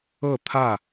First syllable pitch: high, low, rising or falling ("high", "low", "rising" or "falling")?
falling